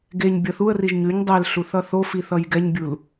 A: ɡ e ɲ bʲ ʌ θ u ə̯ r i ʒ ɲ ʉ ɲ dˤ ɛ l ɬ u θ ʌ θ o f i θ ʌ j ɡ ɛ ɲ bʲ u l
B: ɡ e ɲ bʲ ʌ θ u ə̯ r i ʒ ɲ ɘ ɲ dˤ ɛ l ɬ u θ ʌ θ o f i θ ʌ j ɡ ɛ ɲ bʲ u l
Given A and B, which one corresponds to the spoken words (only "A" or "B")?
A